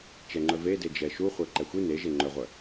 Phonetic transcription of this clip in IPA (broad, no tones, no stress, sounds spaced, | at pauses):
t͡ʃ ɛ ŋ͡ǃ œ v e d e d͡ʒ ɛ ʃ u χʷ ɛ ǃ ɛ xʷ i n e ʒ e ŋ͡ǃ œ ʁʷ œ